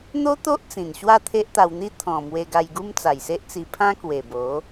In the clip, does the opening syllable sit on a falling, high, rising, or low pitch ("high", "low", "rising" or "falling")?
high